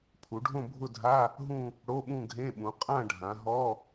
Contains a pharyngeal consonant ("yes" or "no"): no